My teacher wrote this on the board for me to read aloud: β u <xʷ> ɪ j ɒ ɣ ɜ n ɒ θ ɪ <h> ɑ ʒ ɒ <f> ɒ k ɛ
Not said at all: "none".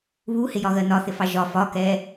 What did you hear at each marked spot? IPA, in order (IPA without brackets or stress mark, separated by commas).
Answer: h, f, f